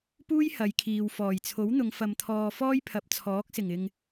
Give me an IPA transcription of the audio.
p uː˥ j h ɐ˨˧ j kʰ iː˨ w f ɔː˨˩ j t͡sʰ o˨˥ w n̪ ʊ˨˧ ŋ f ɐ˧ m t̪ʰ ɔː˧ f ɔː˥ j pʰ ɐ˨˥ p̚ t͡sʰ ɔː˨˥ k̚ s ɪ˨˩ ŋ ɪ˨ ŋ

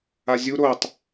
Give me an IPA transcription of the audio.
a zʲ u ɾ o tˤ

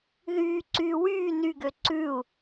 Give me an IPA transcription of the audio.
ð yː ǀ yː w yː n y ɡ ø ǀ ʉ u̯

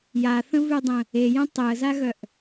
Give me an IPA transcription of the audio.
j a θ ə̃ v ʉ dˤ ə̃ | e j ə̃ tˤ e ə̯ z a ɣ œ ʔ

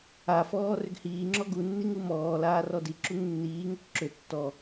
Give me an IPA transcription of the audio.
a f ɔː r ʏ ɡ h iː ŋ͡ǁ ɔ ɡ u nː i ŋ u m ɔː l aː r ɔ d i ǁ u ŋ nː iː ŋ ʏ k ǁ ʏ tː ɔ

